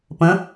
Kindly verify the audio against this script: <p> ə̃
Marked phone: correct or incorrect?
correct